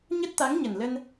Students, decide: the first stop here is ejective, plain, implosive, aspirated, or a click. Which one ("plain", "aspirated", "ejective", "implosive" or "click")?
plain